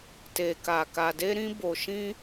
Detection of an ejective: absent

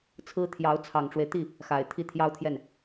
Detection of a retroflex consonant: present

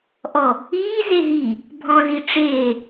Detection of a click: absent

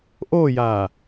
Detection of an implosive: absent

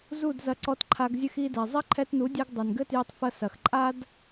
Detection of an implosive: absent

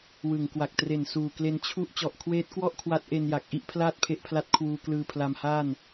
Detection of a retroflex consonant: absent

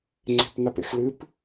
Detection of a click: present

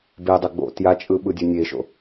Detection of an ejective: present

